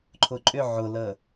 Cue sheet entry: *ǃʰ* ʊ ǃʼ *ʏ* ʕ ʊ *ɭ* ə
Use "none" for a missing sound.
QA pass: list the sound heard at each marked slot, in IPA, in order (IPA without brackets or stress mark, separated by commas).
ǃʰ, ʏ, l